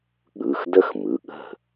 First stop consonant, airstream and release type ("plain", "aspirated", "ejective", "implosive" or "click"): implosive